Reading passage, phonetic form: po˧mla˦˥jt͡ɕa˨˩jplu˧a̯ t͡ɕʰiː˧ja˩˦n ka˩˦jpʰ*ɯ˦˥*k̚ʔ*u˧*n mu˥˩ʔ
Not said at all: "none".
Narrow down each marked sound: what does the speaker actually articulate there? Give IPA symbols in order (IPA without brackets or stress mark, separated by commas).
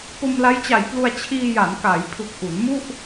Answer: ɯ˨˩, u˩˦